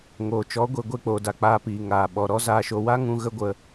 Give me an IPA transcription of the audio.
ŋ oː˨ t͡ʃ ɔ˨˦ ɡʷ e˨ ɡʷ e˦˨ k͡p oː˨ d a˨ k͡p aː˧ p iː˨ ŋ aː˨ ɓ ɔ˨ ɾ ɔ˦ z aː˧ ʃ o˧ w a˦ ŋ ũ˧ ɣ ə˦ ɡʷ ə˧

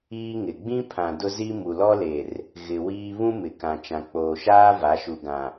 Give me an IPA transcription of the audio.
iː˦ ŋ ɪ˨ ɡ͡b ĩ˦ pʰ ã˨ d ʊ˦ z i˦ m u˨ l ɔ˦ l e˨ r | ɣ ɪ˨ w iː˦ β ũ˦ m ɪ˨ k ã˨ t͡ʃ ã˨ k͡p oː˨ ʃ aː˦ v a˨˦ ʃ u˨ ɡ ã˨

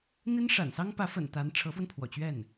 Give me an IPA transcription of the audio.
n̪ i˥ n ʂ a̰˨˩ n s ɑ˥ ŋ p ä˧˥ f ə̰˨˩ n t̪ a˧˥ n ʈ͡ʂʰ ɤ˧˥ f w ə˧ n pʰ w ɔ̰˨˩ t͡ɕ ɥ ɛ˥˩ n

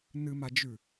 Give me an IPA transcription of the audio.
n ɨ m a d͡ʒ ʉ

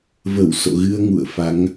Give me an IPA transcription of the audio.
v ə˧˩ w s o̰˧˨ ɣ ɨ˧ ə̯ ŋ ṵ˧˨ ə̯ f a˨˦ ŋ

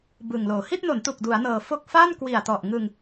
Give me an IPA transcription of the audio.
b ɯ˨˩ ŋ l oː˨˩ h i˥˩ t̚ n o˩˦ n t u˨˩ k̚ d u˩˦ a̯ n ɤː˨˩ f o˥˩ k̚ f a˥˩ n k w i˨˩ a̯ t ɔ˨˩ ʔ ŋ ɯ˧ ŋ

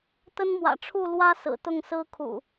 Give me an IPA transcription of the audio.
t̪ ə˦ n m w ä̰˨˩ ʈ͡ʂʰ u˥˨ l w ä˦ s ɹ̩˨˩ t̪ ʊ˥˨ ŋ s ɹ̩˦ kʰ ṵ˨˩

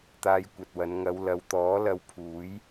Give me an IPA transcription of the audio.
t̪ aː˧ j kʷ ɐ˨ t̚ w ɐ˨˧ n ŋ ɐ˨˧ w l ɐ˨˧ w t̪ ɔː˨˥ l ɐ˨ w pʰ uː˨˥ j

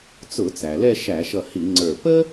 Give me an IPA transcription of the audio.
t͡s ʊ˧˩˧ t͡s æ˩ l ɛ˥˧ ʃ æ˧˩˧ ʃ ʌ˧˩ h i˧˩˧ ŋ͡ǀ ə˞˧˩ p ə˥

